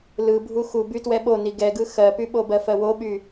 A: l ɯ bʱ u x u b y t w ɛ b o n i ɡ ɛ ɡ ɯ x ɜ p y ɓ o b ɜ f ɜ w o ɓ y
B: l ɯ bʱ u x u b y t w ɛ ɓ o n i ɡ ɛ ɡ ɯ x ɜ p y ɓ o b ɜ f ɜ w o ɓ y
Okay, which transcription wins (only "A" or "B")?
B